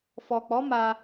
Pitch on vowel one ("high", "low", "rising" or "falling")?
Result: low